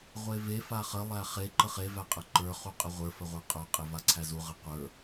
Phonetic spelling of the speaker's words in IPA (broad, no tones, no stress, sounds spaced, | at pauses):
ʁʷ e v e f a χ ə lˠ æ χ e ǃ ə χ e v æ qʼ ə ǃ ə˞ χ u qʼ ə ʁʷ ə˞ f ə ʁʷ ə˞ qʼ ə˞ qʼ e v a ǀʰ æ z u ʁ ə qʷ ə˞